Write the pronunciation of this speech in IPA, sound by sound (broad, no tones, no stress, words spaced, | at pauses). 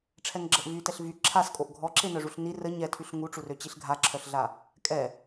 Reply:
ʈ͡ʂʰɛŋɡ͡ǁəʔvytɛɬ vy ǁʰaskʼoʔ ɡʱɔǁenœʐuɬ ni rə ɲɛtʰyɬ ŋuʈ͡ʂurø t͡ɕiɬɡʱaǁʰœɬɮa | kʼɛ